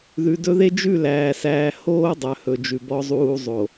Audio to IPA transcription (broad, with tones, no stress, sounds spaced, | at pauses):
ð ʉ˨ d ɵ˦ ð e˦ d͡ʒ ʉ˦˨ l æː˨ s æː˨ h oː˦ dˤ œ˨ h ɵ˨ d͡ʒ ʉ˨ b ɔ˨ zˤ uː˨ zˤ o˨